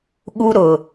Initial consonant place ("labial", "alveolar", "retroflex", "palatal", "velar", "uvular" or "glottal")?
velar